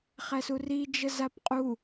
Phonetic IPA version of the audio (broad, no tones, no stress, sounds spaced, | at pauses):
χ æ s u r i d͡ʒ ə z a p qʼ u